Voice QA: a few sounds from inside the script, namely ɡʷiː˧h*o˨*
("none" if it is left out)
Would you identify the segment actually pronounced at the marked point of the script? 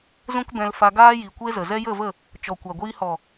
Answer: ɔ˨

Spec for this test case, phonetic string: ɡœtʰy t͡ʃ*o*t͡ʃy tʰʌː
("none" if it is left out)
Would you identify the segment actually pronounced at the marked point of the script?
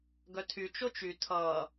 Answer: o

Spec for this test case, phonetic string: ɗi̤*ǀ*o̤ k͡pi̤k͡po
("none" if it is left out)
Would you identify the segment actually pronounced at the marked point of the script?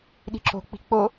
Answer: ǁ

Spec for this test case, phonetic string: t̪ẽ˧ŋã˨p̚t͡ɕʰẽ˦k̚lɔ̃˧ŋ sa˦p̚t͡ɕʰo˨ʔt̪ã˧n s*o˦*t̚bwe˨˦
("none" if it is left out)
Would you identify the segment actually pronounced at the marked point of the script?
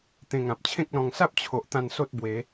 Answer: o˦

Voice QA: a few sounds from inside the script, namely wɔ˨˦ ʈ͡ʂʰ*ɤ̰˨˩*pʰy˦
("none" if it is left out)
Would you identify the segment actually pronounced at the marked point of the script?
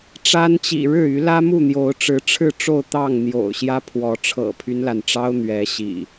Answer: ɤ̰˨˩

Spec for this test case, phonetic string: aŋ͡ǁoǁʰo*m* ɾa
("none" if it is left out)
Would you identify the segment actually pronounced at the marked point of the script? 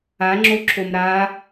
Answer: m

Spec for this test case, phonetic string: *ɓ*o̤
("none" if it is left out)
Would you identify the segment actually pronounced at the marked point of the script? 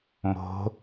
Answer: m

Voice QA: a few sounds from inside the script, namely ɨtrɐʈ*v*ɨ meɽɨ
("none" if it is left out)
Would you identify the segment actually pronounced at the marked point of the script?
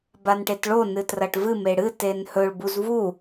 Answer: v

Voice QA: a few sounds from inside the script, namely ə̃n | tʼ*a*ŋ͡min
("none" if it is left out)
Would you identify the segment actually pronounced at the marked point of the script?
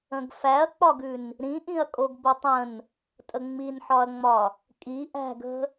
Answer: ə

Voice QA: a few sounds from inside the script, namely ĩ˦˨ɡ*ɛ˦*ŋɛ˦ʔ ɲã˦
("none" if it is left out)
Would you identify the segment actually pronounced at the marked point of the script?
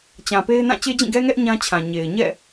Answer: ɛ˦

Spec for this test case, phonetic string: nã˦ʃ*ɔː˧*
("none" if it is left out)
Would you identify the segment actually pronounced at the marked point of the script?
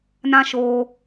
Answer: oː˧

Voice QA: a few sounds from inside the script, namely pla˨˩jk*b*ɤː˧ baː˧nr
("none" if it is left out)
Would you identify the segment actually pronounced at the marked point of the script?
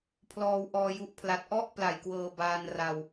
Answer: w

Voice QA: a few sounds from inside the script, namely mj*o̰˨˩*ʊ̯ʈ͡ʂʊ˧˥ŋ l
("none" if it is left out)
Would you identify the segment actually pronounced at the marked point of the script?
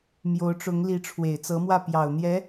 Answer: o˧˥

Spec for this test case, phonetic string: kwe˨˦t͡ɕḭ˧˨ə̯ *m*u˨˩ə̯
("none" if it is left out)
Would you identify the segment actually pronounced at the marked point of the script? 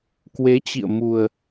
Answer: m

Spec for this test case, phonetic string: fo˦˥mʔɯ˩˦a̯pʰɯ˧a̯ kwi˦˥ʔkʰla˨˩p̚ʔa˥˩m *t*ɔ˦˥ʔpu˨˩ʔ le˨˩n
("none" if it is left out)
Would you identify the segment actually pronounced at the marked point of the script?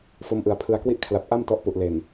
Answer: t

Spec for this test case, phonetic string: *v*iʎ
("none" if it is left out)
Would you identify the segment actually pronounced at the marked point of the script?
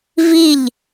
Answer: v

